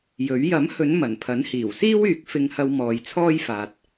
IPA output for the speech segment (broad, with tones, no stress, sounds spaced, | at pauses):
j ɵ˨˥ ɥ j ɐ˨˥ m h ɵ˨˧ n m ɐ˨˩ n pʰ ɐ˨˥ n h iː˨˩ w s iː˥ w yː˨ k̚ f ɪ˧ ŋ h ɐ˧ w m ɔː˨ j t͡sʰ ɔː˥ j f aː˨ t̚